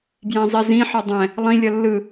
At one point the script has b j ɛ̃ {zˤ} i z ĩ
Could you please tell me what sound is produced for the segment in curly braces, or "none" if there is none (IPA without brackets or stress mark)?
zˤ